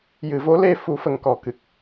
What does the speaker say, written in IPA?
j ɨ˨˩ v o˧˥ l e˧ f u˧ f ə˧ ŋ k ɔ˨˩˦ k ɨ˨˩ k̚

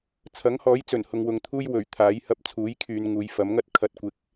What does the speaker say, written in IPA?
t͡sʰ ɐ˨˥ ŋ h ɔː˨˥ j t͡s ɵ˨˩ n h ʊ˨ ŋ w ʊ˨ ŋ t̪ʰ uː˥ j w ɵ˨˩ ɥ t̪ʰ aː˨˥ j h ɐ˧ p̚ t͡sʰ uː˨˥ j kʰ yː˨ n ŋ uː˨ j f ɐ˨˥ m ŋ ɐ˥ t̚ kʰ ɐ˧ t̚ kʷ ɪ˧ k̚

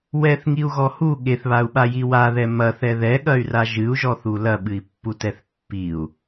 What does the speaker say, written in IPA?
w ɛ θ ŋ i u̯ ɣ ɔ h u ɠ e θ β a u̯ ɓ a j i w a ð ɛ m ɐ θ ɛ ð ɛ ɠ ɐ y̯ r a ʒ ɨ u̯ ʒ ɔ θ u l ɐ ɓ ɨ i̯ pː u t ɛ θ pː i u̯

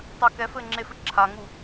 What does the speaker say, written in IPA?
tˤ a k ɛ f ɘ ŋ͡ǁ e f ɘ ǁʰ a ŋ u

